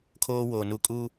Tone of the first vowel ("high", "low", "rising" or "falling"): high